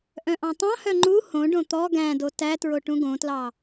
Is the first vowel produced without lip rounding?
no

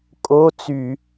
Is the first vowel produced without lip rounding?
no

